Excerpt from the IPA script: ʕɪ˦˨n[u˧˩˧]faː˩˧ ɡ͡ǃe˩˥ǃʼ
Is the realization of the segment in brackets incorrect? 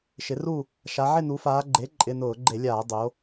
yes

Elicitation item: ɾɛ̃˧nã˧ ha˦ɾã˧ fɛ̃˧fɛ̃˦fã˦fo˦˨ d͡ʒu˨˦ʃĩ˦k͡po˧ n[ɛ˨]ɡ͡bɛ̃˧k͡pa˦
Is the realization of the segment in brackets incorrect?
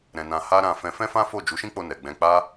no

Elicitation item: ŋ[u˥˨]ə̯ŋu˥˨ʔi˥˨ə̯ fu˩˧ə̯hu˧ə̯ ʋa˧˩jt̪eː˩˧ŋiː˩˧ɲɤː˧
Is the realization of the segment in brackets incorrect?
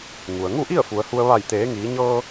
yes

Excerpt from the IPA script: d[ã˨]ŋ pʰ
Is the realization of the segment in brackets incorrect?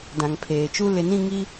no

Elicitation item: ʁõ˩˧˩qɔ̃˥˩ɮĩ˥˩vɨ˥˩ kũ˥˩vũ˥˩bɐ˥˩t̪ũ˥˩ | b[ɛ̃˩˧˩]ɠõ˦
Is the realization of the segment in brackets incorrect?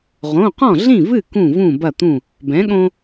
yes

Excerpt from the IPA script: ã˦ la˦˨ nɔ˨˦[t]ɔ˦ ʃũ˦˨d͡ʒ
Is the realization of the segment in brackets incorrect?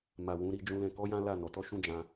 no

